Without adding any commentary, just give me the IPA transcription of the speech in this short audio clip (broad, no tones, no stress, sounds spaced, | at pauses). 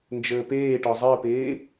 n d͡ʒ əː p eː ʈ ɒ zˤ əː p eː